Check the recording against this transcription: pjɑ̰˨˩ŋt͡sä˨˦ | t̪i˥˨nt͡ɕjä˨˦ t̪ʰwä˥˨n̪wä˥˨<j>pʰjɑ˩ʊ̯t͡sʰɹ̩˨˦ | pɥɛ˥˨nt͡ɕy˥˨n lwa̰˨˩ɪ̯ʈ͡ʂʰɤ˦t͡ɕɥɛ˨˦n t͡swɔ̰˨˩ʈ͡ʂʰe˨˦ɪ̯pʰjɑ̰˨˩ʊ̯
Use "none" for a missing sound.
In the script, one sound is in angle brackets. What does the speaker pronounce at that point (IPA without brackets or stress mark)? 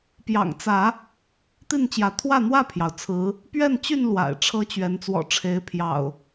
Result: none